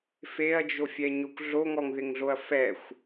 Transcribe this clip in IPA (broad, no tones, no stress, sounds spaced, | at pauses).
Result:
f e ɐ̯ d͡ʒ o fʲ ɛ ɲ o kʷ ɮ o ŋ ɔ ŋ ð ɪ ŋ ɮ o ɐ̯ f ɛ xʷ